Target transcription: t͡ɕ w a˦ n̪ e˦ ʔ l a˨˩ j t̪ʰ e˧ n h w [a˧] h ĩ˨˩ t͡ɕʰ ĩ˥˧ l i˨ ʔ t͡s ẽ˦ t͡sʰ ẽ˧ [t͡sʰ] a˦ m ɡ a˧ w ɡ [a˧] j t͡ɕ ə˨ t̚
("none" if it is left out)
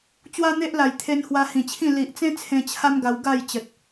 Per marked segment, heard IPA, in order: a˧, t͡ɕʰ, a˥˧

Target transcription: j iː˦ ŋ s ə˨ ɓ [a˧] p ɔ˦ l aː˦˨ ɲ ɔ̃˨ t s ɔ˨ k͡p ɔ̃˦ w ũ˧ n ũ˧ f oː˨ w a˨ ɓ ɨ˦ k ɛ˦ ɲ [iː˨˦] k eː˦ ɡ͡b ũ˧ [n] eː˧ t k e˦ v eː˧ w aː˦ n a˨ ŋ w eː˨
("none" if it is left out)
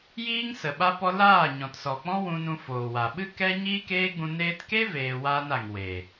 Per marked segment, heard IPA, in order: a˦, iː˦, n

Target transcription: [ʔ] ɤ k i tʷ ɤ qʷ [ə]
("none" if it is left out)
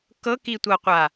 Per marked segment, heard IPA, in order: k, a

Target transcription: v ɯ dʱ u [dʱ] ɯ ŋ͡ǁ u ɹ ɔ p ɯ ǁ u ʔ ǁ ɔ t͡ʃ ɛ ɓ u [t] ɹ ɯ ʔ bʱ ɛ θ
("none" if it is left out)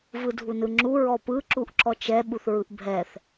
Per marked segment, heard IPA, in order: n, θ

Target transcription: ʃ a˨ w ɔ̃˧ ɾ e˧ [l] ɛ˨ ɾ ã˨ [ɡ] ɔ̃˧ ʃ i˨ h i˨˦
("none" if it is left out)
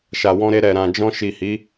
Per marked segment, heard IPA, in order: ɾ, d͡ʒ

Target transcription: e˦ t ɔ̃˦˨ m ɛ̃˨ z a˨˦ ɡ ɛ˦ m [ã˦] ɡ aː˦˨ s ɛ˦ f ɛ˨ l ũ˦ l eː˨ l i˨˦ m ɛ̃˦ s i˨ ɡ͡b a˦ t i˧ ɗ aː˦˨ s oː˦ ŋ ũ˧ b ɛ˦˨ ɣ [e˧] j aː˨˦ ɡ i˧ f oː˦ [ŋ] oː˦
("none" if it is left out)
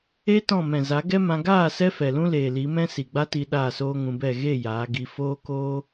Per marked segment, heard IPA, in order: ã˧, e˦˨, k

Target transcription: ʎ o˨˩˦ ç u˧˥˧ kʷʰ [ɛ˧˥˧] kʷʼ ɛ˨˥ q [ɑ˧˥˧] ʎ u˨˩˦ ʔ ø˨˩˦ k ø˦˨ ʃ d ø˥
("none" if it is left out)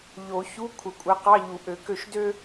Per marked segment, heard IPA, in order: ɛ˨, ɑ˧˥˧

